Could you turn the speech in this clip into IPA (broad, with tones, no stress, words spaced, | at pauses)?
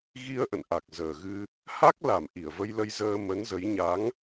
ɣi˧ə̯ ʔə̰˧˨nʔa˨˩k̚zəː˨˩ ɣɨ˧ | ha˦˥k̚la˧˩m ʔi˧˩ə̯və˧jlə˧jzəː˧ mə˨˦nzə˨˦j ɲa˨˦ŋ